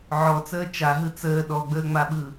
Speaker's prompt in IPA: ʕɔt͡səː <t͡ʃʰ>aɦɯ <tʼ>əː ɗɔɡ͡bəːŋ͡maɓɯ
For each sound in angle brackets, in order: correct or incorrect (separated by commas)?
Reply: incorrect, incorrect